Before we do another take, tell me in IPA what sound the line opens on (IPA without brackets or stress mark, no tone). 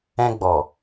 ɛ̃